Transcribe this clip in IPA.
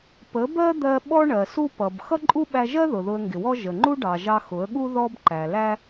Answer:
p ə˨˦ b ɜ˦ d̪ ɜ˧ ɓ ɔ˦ ɳ ɜ˨ s u˦ p ʌ˨ b x ʌ˦ ǃʼ u˦ ɓ æ˧ ʒ ɜ˦ ð ʊ˨ ð ʊ˧ ə̯ ŋ ɡ ɪ˨ w ɔ˦ ʒ ə˨ ŋ͡ǃ u˦ ɖ ɑ˨ ʒ ɑ˧ x ʊ˨˦ ə̯ ɠ u˦ ð ɔ˦ b ǃ æ˨ l æ˦

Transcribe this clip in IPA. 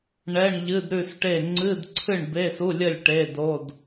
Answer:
ɳ ɛ˧˥˧ ɳ ʎ ɨ˧˥˧ d ɾ ʉ˥˨ s ʈ e˥˨ ŋ͡ǀ ɨ˧˥˧ d ǀʰ ɨ˥˨ ɳ b e˧˥˧ s u˧˥˧ lʲ ə˥˨ lʲ ʈ e˧˥˧ d o˧˥˧ d

